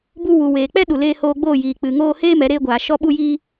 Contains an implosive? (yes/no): yes